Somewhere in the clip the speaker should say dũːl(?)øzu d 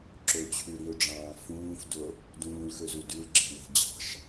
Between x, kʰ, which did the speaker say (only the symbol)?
x